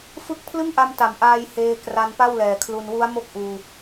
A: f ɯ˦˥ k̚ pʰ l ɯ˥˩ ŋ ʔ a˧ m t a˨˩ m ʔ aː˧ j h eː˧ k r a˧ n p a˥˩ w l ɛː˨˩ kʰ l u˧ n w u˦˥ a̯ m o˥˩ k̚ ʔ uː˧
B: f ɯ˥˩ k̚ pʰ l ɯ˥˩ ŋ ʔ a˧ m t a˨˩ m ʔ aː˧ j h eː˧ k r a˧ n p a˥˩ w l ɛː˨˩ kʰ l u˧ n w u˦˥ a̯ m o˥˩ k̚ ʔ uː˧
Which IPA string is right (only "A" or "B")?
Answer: A